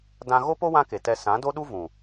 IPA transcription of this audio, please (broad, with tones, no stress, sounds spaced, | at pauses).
d ã˧ ɣ o˦ p o˦ w ã˦ k e˨ t ɛ˧ s ã˨˦ d o˦ ɗ u˦ v ũ˨